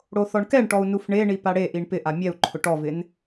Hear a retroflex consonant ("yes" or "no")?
yes